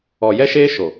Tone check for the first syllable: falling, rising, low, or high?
low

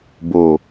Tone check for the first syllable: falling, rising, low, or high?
low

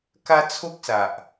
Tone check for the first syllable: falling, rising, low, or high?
high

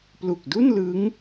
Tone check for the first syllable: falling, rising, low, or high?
low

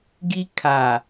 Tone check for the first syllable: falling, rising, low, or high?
high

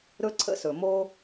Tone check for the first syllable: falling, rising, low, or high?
high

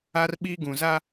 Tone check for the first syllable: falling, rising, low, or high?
high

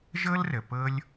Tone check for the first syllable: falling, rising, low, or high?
high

